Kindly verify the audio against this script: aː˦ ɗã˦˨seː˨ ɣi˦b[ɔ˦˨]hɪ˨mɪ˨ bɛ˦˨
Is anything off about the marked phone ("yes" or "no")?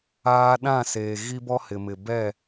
yes